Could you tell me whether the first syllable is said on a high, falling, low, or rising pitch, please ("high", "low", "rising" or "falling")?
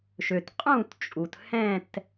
low